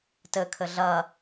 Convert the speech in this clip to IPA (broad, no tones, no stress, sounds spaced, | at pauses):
t ɘ kʰ ɘ ɮ ɐ